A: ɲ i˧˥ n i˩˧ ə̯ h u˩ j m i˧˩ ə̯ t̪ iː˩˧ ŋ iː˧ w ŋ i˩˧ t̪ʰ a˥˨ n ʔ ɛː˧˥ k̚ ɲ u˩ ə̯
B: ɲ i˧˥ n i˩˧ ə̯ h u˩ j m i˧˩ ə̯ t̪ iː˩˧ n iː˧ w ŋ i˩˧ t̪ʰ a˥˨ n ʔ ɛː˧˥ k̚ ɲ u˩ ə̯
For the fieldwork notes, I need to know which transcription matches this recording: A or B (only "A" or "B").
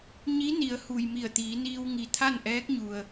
B